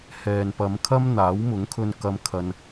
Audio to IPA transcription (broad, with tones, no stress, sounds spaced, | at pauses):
h ɛː˨ n p ɐ˨˧ m kʰ ɐ˥ m n̪ aː˨˥ w m ʊ˨˥ ŋ kʰ ɵ˧ n k ɐ˧ m kʰ ɐ˧ n